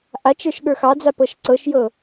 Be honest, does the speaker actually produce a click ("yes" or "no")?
yes